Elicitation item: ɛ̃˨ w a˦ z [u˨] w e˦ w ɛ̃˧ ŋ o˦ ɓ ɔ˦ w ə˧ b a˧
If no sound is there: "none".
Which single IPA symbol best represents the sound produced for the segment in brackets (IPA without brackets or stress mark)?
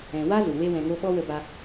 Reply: u˨